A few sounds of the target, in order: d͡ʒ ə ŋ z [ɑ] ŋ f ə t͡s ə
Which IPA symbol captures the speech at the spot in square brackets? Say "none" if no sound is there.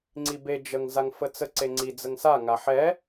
a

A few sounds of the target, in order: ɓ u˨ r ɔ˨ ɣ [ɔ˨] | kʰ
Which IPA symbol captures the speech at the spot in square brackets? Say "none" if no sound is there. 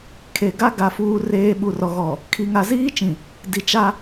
ɔ˨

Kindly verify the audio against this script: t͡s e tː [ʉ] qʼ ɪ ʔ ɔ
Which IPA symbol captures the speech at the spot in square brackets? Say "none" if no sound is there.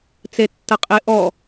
ə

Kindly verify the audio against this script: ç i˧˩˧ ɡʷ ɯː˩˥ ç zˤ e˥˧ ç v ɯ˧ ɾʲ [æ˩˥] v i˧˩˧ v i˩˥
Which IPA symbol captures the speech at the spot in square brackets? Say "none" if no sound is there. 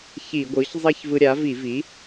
a˩˥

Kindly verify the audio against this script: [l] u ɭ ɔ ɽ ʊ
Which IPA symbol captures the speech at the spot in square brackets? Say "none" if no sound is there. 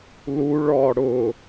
l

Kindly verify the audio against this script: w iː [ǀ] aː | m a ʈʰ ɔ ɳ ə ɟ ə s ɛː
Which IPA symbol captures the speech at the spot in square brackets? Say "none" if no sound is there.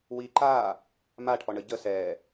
ǃ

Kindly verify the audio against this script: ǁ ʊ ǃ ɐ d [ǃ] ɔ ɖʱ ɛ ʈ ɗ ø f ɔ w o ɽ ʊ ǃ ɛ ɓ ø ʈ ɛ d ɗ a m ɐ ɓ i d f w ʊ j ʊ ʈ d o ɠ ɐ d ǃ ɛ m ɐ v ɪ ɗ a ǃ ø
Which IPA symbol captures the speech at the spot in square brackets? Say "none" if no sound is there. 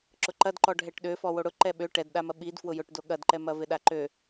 ǃ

